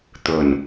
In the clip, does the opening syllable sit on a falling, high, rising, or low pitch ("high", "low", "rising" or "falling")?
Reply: low